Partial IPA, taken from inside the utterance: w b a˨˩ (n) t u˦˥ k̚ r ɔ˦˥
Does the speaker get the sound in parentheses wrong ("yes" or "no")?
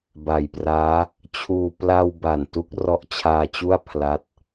no